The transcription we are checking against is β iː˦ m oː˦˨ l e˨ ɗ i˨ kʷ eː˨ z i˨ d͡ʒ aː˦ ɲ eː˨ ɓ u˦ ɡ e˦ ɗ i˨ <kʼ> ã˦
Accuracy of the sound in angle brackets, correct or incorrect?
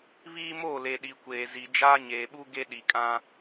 correct